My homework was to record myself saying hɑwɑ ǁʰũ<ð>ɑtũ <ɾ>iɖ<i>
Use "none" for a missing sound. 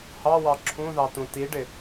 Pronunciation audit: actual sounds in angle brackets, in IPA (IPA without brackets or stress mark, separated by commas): ð, t, ɪ